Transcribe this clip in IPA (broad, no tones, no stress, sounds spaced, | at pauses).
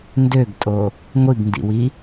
n d ø ɡ tʼ o | ŋʷ i ɡ n d ḭ w i